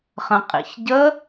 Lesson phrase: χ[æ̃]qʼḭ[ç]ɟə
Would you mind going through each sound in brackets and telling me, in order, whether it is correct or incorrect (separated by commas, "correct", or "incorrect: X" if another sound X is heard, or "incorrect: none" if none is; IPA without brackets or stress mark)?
incorrect: ə̃, correct